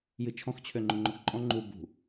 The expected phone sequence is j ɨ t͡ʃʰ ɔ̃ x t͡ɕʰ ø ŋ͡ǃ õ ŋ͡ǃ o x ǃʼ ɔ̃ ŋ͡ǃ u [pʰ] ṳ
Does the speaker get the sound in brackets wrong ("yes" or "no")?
yes